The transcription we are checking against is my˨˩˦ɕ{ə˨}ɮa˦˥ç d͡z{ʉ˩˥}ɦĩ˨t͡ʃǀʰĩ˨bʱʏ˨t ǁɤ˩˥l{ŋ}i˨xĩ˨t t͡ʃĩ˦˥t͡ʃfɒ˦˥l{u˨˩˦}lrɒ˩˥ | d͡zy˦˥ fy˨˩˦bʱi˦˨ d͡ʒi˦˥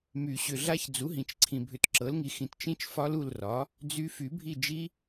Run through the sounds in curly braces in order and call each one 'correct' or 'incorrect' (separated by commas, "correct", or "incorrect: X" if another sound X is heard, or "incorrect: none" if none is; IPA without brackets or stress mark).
incorrect: ʏ˨, incorrect: u˩˥, correct, incorrect: u˦˨